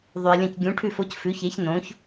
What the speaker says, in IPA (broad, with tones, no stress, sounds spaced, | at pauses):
ðˤ ʉ˩ e̯ lʲ ɐ̃˥˩ c ɡʲ ũ˩˥ ʈʰ ʉ˥˩ f o˥ c f ʉ˩˥ ç e˩˥ ç n õ˩˥ ç